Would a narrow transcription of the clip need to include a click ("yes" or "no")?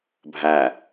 no